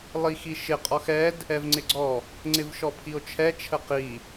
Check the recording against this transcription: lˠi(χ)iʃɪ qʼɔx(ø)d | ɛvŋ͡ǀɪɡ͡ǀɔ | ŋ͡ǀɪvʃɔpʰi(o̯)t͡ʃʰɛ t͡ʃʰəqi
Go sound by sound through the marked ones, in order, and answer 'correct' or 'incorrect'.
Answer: incorrect, incorrect, correct

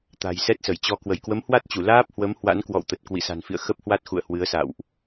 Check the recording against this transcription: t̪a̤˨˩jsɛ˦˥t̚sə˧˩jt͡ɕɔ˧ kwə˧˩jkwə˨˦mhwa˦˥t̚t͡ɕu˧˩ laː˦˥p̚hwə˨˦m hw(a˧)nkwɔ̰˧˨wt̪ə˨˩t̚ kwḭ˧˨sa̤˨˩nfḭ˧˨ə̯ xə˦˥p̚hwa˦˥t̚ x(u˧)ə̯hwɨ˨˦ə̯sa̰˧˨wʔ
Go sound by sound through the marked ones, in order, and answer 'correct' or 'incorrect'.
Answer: incorrect, incorrect

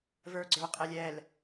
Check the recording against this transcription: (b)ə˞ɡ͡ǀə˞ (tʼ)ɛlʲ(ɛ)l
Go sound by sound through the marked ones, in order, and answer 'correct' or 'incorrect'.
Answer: incorrect, incorrect, correct

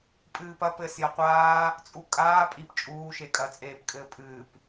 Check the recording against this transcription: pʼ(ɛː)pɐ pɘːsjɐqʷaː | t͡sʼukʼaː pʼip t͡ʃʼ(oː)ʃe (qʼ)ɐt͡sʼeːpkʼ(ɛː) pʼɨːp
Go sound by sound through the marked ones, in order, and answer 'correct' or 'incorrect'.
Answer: incorrect, incorrect, incorrect, incorrect

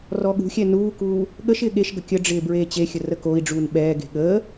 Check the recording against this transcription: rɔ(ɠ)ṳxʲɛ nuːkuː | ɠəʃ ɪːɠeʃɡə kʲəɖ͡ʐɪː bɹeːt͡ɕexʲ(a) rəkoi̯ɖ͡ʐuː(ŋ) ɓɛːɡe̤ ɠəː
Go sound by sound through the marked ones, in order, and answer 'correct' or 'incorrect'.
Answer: correct, incorrect, incorrect

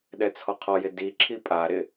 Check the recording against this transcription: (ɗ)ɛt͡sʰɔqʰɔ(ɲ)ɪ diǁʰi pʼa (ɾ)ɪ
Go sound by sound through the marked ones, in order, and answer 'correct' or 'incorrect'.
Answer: correct, incorrect, correct

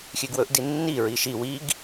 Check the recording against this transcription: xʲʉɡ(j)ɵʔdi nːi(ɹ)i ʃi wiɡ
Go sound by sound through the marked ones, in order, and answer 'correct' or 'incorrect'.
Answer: incorrect, correct

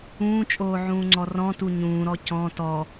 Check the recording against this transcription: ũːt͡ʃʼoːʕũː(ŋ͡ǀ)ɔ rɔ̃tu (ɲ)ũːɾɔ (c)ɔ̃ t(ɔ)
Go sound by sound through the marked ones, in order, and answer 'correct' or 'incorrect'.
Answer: correct, correct, correct, correct

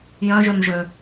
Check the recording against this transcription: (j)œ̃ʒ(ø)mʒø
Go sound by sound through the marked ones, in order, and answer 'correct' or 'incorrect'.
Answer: correct, correct

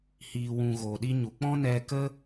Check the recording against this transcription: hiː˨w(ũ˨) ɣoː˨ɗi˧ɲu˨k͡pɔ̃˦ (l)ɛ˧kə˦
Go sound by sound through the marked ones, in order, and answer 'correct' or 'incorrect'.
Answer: correct, incorrect

